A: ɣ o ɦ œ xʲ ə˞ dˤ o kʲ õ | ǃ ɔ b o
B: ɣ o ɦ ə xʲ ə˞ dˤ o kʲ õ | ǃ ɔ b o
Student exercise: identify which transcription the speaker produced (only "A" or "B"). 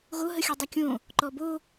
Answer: B